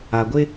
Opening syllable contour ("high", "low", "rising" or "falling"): low